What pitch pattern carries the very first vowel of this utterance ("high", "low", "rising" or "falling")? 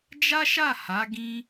high